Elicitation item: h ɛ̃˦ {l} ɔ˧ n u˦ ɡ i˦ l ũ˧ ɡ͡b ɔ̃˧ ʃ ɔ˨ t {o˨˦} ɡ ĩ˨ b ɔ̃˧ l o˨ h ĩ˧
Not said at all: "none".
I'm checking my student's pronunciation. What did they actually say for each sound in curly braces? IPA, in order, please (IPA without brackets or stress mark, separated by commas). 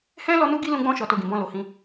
l, o˨